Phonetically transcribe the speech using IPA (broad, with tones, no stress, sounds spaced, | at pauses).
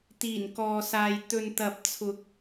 t̪ iː˨˩ n k ɔː˨ s aː˨ j t̪ ɵ˨ n t̪ ɐ˨˥ p̚ t͡sʰ ʊ˨˥ k̚